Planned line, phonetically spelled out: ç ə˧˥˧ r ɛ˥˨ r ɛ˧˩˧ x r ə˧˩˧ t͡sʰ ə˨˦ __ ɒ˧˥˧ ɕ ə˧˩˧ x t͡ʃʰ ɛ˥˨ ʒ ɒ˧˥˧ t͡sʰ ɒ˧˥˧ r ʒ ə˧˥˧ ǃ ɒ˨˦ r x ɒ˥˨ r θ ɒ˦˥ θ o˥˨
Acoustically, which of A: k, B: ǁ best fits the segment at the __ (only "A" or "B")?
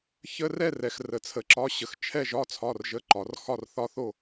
B